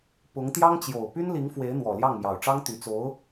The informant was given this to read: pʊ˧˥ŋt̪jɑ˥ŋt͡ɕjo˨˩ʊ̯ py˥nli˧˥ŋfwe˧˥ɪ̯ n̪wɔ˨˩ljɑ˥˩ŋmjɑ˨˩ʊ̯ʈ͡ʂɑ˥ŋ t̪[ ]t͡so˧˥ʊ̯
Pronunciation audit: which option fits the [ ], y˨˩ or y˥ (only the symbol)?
y˨˩